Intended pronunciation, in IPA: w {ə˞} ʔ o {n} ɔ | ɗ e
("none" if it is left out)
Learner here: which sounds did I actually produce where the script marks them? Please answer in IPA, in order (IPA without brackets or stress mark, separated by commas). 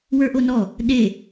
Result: ə˞, n